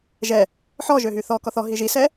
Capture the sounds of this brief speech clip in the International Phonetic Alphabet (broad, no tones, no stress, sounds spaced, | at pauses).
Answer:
ʒ ɛ | ħ ɔ ʒ ø ɦ y θ ɔ k ɔ θ ɔ ɦ i ʒ i s ɛ